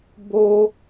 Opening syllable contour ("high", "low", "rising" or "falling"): high